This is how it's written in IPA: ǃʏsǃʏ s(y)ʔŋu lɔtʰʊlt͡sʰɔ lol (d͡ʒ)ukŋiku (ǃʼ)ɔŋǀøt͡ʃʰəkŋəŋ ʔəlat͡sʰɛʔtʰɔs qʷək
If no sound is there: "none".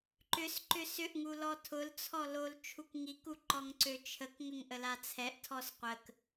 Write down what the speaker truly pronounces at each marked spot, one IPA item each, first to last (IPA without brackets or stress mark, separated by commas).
ʏ, t͡ʃʰ, ǃ